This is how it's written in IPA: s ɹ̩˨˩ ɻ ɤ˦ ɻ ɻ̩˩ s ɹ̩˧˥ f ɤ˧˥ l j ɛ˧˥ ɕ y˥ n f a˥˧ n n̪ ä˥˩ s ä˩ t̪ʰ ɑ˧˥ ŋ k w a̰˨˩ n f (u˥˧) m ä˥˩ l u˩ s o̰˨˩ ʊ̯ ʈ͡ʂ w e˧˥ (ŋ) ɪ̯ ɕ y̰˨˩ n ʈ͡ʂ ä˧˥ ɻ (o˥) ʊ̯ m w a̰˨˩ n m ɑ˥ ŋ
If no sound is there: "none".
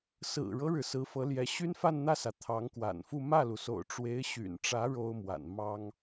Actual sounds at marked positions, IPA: u˥˧, none, o˥

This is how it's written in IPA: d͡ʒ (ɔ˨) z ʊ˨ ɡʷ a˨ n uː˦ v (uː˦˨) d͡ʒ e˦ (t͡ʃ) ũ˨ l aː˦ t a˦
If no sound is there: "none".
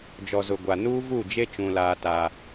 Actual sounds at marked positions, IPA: ɔ˨, uː˦˨, t͡ʃ

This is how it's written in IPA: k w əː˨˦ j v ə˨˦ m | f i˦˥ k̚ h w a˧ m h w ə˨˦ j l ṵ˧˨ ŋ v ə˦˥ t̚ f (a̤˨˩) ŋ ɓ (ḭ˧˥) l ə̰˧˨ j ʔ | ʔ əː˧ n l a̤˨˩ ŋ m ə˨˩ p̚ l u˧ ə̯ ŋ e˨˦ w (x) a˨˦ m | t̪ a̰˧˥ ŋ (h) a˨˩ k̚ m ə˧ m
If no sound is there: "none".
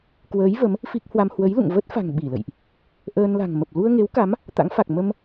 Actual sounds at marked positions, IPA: a̤˨˩, i˧˩, k, f

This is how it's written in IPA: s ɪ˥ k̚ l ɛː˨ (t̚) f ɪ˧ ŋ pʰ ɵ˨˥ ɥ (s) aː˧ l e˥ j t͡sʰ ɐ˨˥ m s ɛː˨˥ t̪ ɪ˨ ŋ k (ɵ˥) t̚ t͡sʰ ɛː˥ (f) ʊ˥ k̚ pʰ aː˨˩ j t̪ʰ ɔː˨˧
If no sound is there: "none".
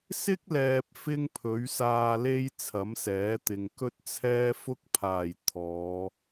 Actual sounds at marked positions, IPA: p̚, s, ɵ˥, f

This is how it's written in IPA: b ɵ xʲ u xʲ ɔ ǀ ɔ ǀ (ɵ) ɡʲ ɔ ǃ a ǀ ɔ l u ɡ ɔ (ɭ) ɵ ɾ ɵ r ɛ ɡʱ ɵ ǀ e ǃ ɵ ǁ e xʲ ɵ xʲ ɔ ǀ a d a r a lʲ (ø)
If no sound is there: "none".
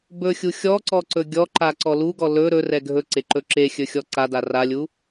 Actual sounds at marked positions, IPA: ɵ, l, u

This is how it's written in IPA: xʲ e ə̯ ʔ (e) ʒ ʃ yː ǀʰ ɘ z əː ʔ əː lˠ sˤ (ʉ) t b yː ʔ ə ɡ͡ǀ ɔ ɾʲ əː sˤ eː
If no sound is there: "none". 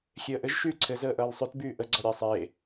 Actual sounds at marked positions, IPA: ɘ, ʉ

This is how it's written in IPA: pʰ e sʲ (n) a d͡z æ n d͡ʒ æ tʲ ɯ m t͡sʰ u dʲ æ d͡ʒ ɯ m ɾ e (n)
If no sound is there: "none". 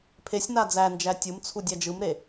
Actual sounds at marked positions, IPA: n, none

